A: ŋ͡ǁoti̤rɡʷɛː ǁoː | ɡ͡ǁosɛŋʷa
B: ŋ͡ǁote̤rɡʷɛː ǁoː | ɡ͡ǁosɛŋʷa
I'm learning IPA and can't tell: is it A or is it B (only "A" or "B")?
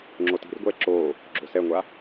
A